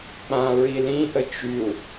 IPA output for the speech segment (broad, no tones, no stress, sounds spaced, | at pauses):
k͡p ã ɹ i l ĩ ʔ ə t͡ʃ y u̯